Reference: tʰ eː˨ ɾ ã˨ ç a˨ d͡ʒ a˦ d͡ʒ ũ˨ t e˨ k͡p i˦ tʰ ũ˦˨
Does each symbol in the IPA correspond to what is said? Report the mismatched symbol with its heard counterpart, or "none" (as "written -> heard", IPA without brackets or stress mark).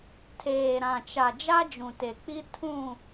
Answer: ç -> t͡ʃ